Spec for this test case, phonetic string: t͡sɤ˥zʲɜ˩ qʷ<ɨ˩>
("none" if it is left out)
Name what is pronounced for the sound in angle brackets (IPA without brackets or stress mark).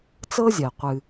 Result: ɨ˩